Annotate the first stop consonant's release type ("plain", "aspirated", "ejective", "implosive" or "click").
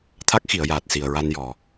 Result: aspirated